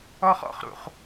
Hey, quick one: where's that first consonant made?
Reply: uvula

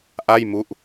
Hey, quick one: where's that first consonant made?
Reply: throat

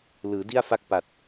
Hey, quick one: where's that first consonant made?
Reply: tongue tip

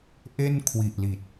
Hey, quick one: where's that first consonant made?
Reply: throat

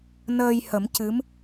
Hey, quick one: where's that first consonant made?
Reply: tongue tip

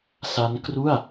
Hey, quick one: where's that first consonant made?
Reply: tongue tip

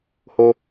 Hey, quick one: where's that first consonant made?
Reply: throat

